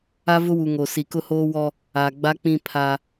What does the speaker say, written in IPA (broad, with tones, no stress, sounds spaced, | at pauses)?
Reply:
a˦ v ʊ˦ w u˨ ŋ o˨ s i˨ k ʊ˦ h oː˦ w ɔ˦ | a˨ ɡ͡b a˦ k͡p ĩ˦ pʰ a˦